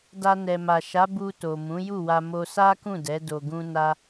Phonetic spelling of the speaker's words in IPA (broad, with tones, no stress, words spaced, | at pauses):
da˧ nɛ˨ma˨ʃa˨˦ bu˧to˨ mũ˨˦ju˦˨wa˧ mo˧sa˦kũ˦˨dɛ˨˦ do˧ɡũ˦ na˦